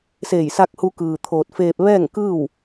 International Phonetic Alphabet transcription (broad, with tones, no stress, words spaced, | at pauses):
seː˧˩jsa˧k̚hu˧ kɯː˧t̪ʰoː˧t̚ feː˧p̚ ʋɛː˥˨ŋkɯː˥˨w